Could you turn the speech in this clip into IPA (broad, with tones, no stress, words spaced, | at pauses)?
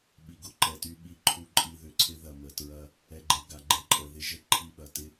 ɓi˨ɡʊ˨ǃɛ˨ty˦ ɓi˦ǃʰu˦ǃʼi˦ ðʏ˨ǀʰɪ˦ðɐ˨ mə˨tɹɐ˦ | ɛ˨ɡ͡ǃe˨ ɡa˨ɡ͡ǃe˦ǃʼə˨ ðɪ˦ʒə˦ ǃʰi˦ɓɐ˨ tɪ˦